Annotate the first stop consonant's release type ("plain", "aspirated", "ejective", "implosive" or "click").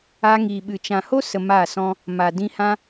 implosive